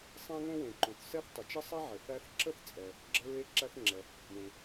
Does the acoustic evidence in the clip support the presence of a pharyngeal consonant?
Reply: yes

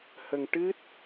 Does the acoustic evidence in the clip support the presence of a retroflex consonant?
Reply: yes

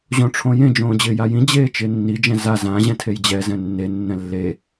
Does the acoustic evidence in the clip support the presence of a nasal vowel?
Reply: yes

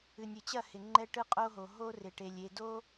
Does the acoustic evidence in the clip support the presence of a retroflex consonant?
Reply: yes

